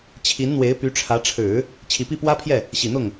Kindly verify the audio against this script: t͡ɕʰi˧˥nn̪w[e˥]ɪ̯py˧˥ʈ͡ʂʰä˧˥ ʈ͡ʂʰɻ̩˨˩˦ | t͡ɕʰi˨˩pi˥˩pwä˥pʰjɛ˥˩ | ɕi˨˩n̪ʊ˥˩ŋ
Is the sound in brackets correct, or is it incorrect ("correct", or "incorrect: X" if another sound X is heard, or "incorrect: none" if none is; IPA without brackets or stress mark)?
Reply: incorrect: e˧˥